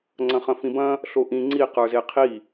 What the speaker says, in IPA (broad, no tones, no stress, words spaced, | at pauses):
ŋ͡ǀɐ̃χɐ̃fĩbɐ̃ | ɬoʔĩ ŋ͡ǀi qə˞zeqʰi